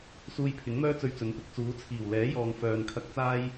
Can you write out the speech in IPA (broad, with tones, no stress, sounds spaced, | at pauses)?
s uː˧ j pʰ ɪ˨˥ ŋ m œː˥ t͡s ɵ˧ ɥ t͡s ɵ˨˥ n p ɪ˧ k̚ t͡s uː˨˥ t͡sʰ iː˨˩ w l ɛː˨˥ j ɔː˨ ŋ f œː˨ n kʰ ɐ˧ k̚ t͡s aː˥ j